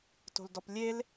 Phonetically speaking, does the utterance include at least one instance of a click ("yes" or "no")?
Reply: no